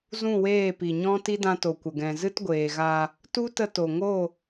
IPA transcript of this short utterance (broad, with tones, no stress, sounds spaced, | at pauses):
z ũ˦˨ w eː˦˨ p i˨ ɲ ɔ̃˦ t i˦ d ã˧ t o˨ kʷ ə˨ ɡ ɛ̃˨ z ɨ˦ t ɡʷ eː˨ ɣ a˧ | t u˦ t ə˧ t o˨ ŋ o˦˨